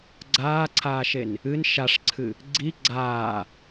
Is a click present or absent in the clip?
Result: present